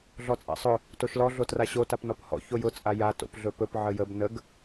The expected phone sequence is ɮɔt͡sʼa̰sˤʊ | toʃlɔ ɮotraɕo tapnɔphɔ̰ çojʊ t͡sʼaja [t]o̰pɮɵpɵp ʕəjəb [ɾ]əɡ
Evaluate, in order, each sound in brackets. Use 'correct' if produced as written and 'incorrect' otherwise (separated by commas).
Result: correct, incorrect